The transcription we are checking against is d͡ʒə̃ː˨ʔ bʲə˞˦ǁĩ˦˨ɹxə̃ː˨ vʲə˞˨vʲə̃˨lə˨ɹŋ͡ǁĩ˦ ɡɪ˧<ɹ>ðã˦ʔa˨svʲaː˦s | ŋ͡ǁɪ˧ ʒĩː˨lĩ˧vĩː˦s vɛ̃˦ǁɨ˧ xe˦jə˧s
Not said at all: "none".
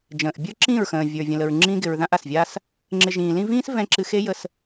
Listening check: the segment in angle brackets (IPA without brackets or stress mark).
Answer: ɹ